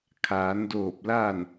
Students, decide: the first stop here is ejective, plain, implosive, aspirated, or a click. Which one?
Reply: aspirated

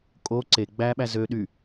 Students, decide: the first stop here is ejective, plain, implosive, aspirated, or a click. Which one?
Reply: ejective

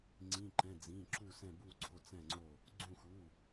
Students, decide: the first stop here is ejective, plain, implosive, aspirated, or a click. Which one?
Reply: click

